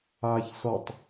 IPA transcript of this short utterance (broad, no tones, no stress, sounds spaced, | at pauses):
aː ç s ɔ tˤ